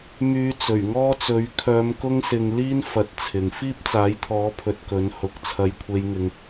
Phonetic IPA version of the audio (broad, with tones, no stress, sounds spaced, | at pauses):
m yː˨˧ t͡s ɵ˨˩ ɥ ŋ ɔː˥ t͡s ɵ˨˥ ɥ kʰ œː˨˧ m k ʊ˧ ŋ s ɪ˨ ŋ l iː˥ n f ɐ˥ t̚ t͡sʰ ɪ˧ ŋ f iː˥ p̚ t͡s aː˨˥ j t̪ʰ ɔː˨˥ pʰ ɵ˨ t̚ k ɵ˨˥ n h ʊ˨ k̚ t͡sʰ ɐ˧ j kʷʰ e˧ j ŋ ɪ˧ ŋ